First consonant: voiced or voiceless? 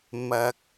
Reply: voiced